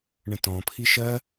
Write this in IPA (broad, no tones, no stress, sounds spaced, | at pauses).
ɳ ə̃ t ɔ̃ pʰ i ʃ ɜ